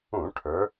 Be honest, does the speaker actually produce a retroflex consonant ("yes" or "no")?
yes